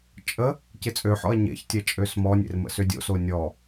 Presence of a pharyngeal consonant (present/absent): present